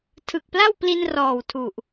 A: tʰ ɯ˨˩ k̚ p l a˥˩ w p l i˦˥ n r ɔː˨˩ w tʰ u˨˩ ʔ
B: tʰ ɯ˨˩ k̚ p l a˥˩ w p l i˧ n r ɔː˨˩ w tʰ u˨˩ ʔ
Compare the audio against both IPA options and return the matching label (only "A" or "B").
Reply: B